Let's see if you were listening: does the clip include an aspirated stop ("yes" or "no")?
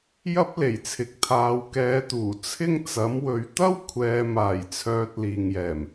yes